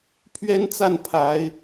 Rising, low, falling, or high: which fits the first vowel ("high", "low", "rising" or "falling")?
high